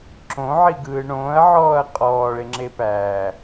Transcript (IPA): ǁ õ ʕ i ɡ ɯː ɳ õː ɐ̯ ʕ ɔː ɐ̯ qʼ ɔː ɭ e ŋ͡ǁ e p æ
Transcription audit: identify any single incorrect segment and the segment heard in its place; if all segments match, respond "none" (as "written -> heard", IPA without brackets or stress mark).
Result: none